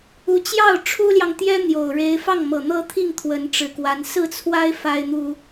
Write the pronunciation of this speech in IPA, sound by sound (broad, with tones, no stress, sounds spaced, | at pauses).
u˧˥ t͡ɕ j ɑ˥˩ ʊ̯ ʈ͡ʂʰ u˥ l j ɑ˨ ŋ t̪ j ɛ˥ n̪ j o˨˩ ʊ̯ ɻ e˧˥ ɪ̯ f ɑ˥˩ ŋ m ɤ˨˩ n̪ ɤ˥ t̪ʰ i˥˩ ŋ t̪ʰ w ə˧˥ n ʈ͡ʂ ɻ̩˨˩ k w a˧˥ n s ɹ̩˥˩ t͡sʰ w a˥ ɪ̯ f a˥ ɪ̯ n̪ u˥